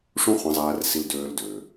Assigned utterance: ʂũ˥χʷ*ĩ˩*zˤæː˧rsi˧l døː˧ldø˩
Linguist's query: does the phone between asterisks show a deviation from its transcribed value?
yes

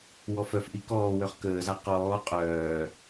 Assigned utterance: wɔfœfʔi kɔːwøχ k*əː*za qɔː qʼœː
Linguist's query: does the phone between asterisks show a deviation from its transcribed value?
no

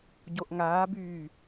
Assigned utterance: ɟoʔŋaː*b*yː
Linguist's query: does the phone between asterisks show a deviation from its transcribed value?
no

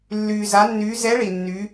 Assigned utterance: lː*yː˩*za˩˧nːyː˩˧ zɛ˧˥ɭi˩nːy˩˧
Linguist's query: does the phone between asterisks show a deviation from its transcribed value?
no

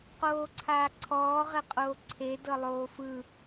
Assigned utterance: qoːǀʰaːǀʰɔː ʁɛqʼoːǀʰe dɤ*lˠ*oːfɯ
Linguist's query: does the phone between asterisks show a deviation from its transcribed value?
no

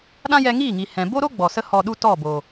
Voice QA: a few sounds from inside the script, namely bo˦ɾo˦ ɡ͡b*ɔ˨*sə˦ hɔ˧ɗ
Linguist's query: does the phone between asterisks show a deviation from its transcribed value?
no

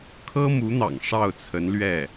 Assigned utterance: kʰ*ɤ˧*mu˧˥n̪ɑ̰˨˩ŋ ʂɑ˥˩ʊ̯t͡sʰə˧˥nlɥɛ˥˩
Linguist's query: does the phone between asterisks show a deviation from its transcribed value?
yes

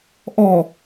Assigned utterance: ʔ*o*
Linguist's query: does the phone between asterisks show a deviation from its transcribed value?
yes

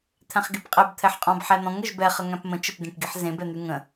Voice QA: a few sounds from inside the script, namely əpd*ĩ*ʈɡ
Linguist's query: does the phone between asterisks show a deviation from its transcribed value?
yes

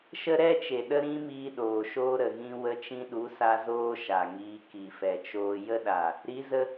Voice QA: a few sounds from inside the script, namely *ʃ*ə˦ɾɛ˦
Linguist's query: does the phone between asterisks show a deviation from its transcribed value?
no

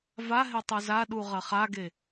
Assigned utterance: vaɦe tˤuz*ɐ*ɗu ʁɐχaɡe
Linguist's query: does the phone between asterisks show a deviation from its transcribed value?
yes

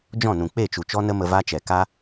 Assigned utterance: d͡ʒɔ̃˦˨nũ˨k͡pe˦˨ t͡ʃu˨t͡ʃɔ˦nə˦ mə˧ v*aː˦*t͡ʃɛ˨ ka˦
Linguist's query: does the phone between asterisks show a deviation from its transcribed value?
yes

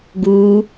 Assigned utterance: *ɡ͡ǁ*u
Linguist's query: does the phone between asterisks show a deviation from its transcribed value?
yes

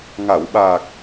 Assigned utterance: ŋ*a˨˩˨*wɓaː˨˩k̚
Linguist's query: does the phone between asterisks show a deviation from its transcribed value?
no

